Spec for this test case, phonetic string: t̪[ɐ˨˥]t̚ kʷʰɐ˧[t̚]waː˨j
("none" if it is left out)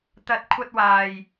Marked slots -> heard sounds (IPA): ɐ˨˥, t̚

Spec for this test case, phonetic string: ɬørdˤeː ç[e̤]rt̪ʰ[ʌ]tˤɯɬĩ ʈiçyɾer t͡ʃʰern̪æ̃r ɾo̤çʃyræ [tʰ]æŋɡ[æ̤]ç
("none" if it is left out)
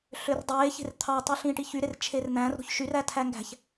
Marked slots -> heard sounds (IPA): e̤, ɑ, tʰ, æ̤

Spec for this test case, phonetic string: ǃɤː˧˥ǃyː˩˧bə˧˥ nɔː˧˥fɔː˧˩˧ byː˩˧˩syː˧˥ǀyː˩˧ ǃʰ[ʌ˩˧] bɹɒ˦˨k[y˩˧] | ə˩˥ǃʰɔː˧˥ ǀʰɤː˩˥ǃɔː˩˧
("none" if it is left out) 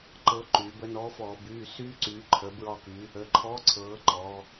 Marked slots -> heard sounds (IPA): ə˩˧, y˩˧

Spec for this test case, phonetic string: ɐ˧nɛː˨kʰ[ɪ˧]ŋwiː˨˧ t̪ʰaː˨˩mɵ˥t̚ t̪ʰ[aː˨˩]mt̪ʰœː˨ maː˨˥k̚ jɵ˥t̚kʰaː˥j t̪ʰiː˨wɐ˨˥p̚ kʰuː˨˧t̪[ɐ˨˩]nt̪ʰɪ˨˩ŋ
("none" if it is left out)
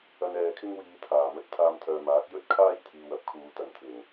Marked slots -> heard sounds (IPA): ɪ˥, aː˧, ɐ˨

